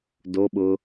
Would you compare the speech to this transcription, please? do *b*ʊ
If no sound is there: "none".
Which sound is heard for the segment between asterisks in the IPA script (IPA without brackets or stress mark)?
ɓ